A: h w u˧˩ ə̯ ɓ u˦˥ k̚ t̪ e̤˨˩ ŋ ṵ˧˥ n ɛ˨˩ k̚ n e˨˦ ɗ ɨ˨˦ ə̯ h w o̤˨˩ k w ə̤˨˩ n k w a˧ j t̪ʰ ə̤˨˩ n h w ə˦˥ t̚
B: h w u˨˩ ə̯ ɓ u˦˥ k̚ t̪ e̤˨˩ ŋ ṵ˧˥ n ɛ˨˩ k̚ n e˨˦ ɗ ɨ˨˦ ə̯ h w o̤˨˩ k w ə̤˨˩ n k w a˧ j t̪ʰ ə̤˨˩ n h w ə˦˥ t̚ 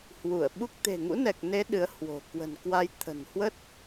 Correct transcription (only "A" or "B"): A